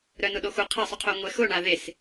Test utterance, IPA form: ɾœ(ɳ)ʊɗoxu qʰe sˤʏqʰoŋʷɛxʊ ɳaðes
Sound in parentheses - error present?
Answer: yes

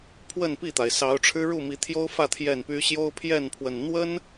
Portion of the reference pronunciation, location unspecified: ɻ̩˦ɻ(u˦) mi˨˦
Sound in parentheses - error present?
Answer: yes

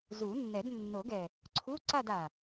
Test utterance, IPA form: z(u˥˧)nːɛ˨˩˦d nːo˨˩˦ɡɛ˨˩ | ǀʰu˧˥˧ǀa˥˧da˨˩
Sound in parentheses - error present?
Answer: yes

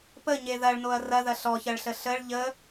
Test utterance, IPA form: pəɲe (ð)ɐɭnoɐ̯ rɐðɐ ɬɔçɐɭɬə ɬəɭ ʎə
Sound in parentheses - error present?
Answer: no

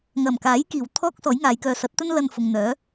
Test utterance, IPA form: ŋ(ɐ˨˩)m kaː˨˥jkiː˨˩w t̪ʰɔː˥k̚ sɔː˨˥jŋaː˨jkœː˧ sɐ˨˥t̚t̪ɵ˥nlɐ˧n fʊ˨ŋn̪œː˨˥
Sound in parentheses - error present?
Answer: no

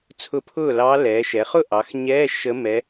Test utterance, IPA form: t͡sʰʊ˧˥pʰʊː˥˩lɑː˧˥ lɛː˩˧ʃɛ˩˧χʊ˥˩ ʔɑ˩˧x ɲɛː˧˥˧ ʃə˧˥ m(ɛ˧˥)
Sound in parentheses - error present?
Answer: no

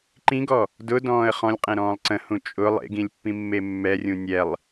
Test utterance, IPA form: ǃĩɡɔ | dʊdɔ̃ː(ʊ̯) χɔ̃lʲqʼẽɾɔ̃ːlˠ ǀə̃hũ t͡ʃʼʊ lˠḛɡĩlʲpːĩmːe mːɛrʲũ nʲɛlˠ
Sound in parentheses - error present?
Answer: yes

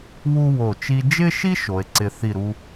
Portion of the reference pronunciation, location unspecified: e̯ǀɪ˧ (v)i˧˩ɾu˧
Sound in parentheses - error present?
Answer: yes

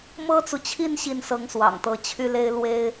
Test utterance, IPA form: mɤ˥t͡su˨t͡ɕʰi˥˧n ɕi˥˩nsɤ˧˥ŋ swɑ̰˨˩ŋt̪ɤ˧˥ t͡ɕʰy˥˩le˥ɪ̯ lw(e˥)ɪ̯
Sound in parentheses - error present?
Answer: no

